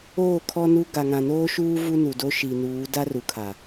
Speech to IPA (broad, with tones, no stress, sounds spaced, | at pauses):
oː˦˨ kʰ ɔ˦ n u˦ ɡ a˨ ŋ ã˨ n oː˦ ʃ uː˦ v u˦ n u˨ d o˦ ʃ i˨ n uː˨˦ d a˦ r u˨ kʰ a˨